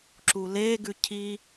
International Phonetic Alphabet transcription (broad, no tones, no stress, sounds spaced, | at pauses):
ǁ u l e ɡ ʉ cʰ i